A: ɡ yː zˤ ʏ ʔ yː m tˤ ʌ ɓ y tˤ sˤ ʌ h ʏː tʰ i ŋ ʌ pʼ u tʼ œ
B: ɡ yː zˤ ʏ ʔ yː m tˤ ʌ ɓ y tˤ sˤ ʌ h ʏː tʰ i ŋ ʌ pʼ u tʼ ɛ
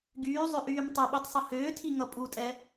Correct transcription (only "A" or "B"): B